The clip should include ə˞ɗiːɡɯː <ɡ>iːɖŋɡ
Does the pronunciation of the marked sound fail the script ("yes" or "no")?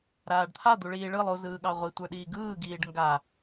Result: no